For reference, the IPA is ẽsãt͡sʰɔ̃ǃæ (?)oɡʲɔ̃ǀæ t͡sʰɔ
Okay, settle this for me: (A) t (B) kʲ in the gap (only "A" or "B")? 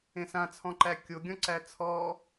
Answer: B